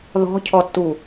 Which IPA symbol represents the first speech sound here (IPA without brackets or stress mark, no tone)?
ð